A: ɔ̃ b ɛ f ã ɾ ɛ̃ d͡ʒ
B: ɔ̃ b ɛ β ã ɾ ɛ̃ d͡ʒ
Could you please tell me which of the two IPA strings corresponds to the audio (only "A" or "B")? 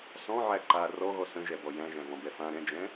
A